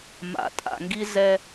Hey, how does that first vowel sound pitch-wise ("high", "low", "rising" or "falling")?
low